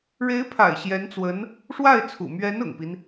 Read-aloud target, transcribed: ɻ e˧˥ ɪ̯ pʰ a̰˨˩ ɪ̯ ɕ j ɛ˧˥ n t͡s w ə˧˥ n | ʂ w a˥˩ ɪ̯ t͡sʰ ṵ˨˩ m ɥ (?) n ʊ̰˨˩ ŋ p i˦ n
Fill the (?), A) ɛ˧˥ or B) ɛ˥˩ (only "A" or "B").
A